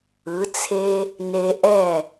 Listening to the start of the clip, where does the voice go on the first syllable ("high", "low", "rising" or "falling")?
rising